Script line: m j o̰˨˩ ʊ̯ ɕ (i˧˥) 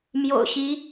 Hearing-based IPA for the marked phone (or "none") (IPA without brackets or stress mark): i˧˥